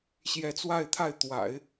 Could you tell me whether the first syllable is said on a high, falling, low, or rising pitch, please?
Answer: rising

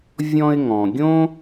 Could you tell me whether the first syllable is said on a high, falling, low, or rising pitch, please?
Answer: high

